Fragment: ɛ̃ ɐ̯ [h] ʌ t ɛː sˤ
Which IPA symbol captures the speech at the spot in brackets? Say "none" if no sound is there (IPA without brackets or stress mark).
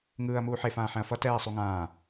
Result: f